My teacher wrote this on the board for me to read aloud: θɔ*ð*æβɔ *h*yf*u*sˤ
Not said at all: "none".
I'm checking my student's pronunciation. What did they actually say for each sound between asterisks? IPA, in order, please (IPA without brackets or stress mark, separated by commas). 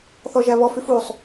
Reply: ʒ, f, u